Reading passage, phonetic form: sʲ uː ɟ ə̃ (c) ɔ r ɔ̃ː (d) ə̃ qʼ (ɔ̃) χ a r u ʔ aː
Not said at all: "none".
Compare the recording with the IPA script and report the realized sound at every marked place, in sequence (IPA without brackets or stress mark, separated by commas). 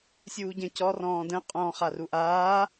c, d, ɔ̃